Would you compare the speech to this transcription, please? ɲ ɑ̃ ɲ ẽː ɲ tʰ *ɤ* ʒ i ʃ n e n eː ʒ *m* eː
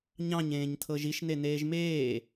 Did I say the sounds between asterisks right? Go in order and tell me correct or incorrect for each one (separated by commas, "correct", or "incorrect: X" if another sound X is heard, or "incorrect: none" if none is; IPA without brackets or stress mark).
correct, correct